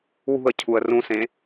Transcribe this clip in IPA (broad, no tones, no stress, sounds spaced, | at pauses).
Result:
w ṳ ə̯ cʰ u ə̯ r ũ s ẽ